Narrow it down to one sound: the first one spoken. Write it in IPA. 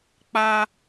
k͡p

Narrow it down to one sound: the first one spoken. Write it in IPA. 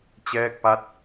t͡ɕ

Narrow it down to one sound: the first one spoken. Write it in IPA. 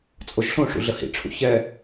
t͡sʼ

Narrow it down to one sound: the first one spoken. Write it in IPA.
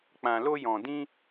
k͡p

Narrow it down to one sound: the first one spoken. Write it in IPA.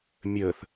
mʲ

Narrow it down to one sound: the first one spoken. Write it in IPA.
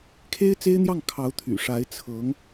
kʰ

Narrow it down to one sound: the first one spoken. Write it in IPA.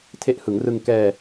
tʰ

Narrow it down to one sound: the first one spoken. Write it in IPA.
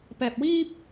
p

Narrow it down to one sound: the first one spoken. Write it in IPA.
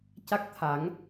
c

